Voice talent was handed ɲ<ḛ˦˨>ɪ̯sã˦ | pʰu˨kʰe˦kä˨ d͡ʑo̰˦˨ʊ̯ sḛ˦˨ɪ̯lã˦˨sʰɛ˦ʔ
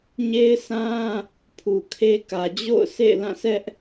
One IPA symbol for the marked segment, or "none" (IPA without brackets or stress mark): e˦